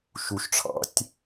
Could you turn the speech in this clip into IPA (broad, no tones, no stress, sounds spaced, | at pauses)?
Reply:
ʃ u ʃ ʈ͡ʂʰ ɑ̰ tʲ